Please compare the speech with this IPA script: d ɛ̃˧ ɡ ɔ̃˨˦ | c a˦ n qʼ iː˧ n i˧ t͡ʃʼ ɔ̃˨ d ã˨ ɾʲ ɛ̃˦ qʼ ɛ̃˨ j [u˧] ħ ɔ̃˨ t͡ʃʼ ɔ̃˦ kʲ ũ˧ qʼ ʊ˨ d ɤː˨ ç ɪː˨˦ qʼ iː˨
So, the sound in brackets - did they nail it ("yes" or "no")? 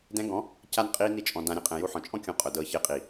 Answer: yes